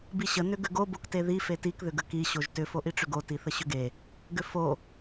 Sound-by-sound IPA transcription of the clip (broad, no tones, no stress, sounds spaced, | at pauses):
b i ɕ ə n ʏ ɡ ʏ ɡ o b o k t e ð i f e t i k ð ʏ ɡ ə k i ɕ o ʒ t ʏ f o ʔ i ʈ͡ʂ ʏ ɡ o t i θ ə ɕ ʏ ɡ e | ɡ ʏ f o